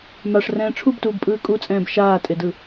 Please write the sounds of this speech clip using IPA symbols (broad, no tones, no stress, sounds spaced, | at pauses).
m a ʂ r ɛ̃ː ʈ͡ʂʰ u b t uː b pʼ ɯː kʼ u t͡sʼ ɛ̃ː b ʃ aː tʼ e d ɯ